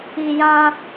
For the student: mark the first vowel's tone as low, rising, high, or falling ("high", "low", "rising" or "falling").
low